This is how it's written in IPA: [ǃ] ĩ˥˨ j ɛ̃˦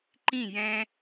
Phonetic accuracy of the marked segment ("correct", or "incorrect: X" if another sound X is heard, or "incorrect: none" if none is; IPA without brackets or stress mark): correct